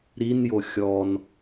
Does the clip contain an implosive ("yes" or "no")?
no